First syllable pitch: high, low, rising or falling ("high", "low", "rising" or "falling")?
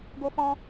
high